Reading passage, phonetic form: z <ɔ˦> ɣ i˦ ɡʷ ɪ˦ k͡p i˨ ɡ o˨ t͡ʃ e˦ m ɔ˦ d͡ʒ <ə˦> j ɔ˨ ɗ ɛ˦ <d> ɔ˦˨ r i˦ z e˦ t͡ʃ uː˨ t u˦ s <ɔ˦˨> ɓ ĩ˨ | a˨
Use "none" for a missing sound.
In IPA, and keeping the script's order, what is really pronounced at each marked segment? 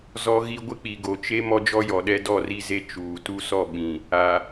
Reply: ɔ˦, ɔ˦, d, ɔ˦˨

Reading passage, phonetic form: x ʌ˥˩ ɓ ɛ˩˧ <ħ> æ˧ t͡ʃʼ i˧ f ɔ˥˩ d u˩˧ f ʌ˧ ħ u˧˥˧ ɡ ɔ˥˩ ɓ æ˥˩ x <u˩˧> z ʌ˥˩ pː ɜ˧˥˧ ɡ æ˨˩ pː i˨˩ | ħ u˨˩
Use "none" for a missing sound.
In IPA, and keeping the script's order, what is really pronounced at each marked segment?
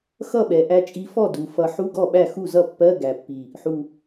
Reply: ʔ, u˥˩

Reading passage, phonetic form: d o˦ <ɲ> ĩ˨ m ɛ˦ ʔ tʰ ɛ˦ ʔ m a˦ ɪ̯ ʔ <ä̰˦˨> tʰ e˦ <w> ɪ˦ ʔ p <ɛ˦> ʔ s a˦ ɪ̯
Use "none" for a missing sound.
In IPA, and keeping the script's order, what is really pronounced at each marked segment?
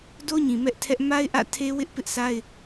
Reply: ɲ, ä̰˦˨, w, ɪ˦

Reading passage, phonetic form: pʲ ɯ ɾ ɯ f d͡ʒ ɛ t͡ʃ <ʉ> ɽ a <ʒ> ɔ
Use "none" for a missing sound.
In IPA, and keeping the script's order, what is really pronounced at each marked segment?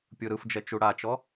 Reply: u, t͡ʃ

